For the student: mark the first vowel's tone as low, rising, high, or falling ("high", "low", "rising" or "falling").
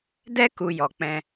high